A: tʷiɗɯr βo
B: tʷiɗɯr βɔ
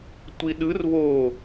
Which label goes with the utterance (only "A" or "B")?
A